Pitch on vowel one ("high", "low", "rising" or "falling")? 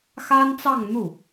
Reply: high